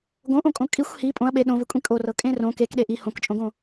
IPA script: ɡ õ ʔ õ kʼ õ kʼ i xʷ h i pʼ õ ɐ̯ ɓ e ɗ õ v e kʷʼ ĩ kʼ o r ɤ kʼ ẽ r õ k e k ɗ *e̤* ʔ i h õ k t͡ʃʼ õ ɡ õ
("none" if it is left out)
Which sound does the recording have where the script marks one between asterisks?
e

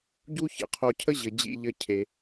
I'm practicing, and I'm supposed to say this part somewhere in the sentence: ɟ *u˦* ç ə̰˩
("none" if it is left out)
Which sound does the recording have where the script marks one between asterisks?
u˦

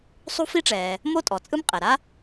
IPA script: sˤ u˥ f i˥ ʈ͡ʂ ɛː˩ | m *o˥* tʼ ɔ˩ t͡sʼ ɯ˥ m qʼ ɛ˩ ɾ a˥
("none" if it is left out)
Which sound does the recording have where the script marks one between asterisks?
o˥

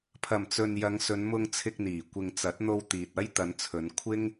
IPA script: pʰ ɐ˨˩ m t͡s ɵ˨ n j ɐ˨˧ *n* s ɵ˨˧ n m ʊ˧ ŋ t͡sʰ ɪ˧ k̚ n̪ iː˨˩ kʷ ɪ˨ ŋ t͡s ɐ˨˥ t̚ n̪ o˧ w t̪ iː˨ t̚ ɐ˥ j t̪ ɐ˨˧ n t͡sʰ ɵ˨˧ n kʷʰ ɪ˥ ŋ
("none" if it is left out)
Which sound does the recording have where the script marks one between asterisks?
ŋ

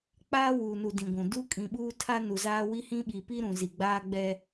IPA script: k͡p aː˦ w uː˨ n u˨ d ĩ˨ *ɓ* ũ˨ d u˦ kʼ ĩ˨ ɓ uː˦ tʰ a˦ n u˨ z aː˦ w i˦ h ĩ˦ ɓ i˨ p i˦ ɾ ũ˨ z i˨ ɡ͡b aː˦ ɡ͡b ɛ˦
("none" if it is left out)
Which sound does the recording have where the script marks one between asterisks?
ɡʷ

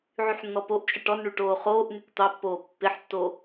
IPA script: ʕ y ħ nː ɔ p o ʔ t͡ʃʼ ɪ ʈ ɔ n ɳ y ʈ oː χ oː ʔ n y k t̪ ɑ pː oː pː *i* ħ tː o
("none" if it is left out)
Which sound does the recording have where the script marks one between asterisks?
ɪ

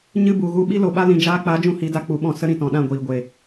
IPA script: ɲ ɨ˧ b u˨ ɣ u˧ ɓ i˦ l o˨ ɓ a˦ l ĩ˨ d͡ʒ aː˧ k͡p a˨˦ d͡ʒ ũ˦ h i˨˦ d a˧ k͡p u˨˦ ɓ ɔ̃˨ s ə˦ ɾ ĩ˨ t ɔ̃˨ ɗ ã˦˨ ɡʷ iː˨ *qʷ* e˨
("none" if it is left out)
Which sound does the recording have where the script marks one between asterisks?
ɡʷ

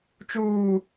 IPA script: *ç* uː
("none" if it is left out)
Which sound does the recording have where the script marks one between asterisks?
t͡ʃ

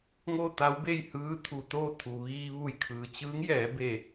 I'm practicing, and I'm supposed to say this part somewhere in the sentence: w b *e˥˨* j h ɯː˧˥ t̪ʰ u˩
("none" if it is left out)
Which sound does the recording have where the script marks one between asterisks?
e˥˨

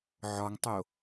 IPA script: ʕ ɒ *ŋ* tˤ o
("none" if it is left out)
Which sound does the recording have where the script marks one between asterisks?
ŋ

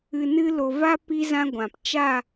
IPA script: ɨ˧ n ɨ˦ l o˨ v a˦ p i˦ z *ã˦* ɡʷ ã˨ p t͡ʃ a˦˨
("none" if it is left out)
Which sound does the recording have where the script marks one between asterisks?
ã˦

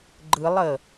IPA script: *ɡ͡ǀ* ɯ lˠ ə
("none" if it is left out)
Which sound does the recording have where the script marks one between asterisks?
ɡ͡ǃ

